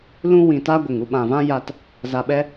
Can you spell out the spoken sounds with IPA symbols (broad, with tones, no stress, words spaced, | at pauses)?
lũ˦wĩ˨ta˦ ɡʷə˨ŋu˧ɓã˨ vã˦ja˧t | za˧ɓɛ˦